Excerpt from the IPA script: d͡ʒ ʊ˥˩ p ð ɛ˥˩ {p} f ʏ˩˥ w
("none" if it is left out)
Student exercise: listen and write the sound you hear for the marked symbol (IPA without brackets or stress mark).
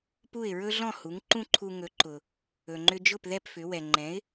p